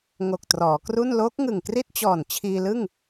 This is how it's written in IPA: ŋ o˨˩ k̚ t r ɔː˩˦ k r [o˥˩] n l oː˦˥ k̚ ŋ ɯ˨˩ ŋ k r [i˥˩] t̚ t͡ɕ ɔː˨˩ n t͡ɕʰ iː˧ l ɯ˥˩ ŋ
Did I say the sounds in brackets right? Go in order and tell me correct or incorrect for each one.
incorrect: u˥˩, correct

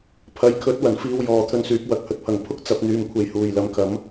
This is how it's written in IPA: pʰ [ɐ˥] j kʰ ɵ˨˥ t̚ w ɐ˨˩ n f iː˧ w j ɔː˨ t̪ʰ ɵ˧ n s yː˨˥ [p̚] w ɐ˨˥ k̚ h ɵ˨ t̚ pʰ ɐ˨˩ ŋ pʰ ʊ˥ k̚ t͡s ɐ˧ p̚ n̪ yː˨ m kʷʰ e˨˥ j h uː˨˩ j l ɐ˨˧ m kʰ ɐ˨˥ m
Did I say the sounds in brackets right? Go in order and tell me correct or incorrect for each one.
incorrect: ɐ˨, correct

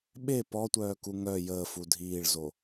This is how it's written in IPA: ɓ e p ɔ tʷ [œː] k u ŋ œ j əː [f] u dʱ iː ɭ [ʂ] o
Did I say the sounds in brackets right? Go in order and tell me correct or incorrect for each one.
correct, correct, incorrect: z

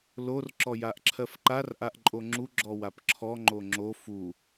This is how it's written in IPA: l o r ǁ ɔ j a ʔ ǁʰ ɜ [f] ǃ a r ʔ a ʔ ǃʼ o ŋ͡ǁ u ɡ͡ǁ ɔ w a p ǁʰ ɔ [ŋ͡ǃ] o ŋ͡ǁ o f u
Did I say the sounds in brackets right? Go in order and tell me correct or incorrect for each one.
correct, correct

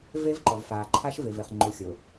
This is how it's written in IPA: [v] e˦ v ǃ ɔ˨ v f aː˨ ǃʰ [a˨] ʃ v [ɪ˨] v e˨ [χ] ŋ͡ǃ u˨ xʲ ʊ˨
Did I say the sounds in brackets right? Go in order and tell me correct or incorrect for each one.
correct, incorrect: a˦, correct, correct

